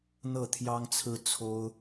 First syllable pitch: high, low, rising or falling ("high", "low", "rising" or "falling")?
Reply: falling